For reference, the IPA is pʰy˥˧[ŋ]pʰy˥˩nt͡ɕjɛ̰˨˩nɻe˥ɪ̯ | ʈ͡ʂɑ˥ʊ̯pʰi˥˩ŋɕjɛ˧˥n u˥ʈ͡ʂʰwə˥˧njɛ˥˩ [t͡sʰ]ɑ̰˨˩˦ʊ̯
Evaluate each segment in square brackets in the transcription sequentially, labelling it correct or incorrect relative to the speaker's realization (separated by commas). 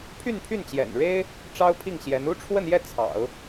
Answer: incorrect, correct